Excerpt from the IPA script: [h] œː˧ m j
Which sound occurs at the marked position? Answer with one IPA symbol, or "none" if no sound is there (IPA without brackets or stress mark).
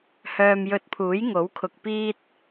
h